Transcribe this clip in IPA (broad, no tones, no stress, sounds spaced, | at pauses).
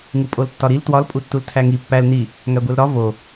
ŋ u pʼ o l tː ɒ ɾ i l t w ɒ l pʼ u tː u l tʰ æ ŋ i pː æ l n i | ŋ æ ɡʷ e l ɾ ɒ v o